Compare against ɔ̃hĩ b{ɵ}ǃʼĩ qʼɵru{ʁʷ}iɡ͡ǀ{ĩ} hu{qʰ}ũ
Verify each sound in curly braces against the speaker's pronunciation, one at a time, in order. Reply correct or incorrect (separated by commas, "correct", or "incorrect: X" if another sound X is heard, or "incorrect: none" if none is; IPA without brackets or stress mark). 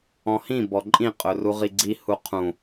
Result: incorrect: ɔ, incorrect: ʁ, incorrect: i, correct